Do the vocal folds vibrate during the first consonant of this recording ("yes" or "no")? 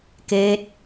no